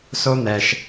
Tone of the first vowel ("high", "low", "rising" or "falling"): high